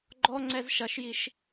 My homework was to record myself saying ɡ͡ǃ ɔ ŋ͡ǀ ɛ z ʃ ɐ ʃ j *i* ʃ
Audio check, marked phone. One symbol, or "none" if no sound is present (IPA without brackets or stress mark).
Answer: i